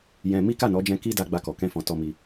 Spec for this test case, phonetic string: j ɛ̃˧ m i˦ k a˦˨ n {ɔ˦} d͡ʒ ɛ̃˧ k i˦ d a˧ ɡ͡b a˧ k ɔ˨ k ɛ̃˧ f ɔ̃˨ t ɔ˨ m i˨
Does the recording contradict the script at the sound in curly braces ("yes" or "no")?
yes